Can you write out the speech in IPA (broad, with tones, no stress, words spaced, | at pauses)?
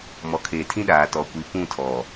mɔ˨kʰeː˨tʰĩ˦ɗaː˨ tɔ˨kʷi˨ pũ˦˨tʰɔ˨